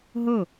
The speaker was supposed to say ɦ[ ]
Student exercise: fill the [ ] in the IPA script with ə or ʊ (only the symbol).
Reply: ə